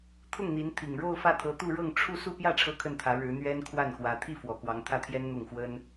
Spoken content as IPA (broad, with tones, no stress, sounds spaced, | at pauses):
t̪ʰ ʊ˥˩ ŋ n̪ i˧˥ n t̪ʰ i˨˩ ŋ ɻ o˥˧ ʊ̯ f ä˥˩ t̪ʰ ɤ˧˥ t̪ u˥˧ ɻ ɤ˥˧ ŋ ʈ͡ʂʰ u˥˧ s u˥˧ p j ä˥˩ ʈ͡ʂʰ ɤ˥ kʰ ə˥˩ n t̪ʰ ä˧˥ ɻ ɻ̩˧˥ n̪ ɥ ɛ˥ n kʰ w a˥˩ n x w ä˧˥ t̪ʰ i˥˩ f w ɔ˨˩ k w ɑ˧˥ ŋ t̪ʰ ä˥˩ t̪ʰ j ɛ˥ n n̪ ʊ˥˩ ŋ x w ə˥ n